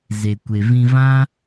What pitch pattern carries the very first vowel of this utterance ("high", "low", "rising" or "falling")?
low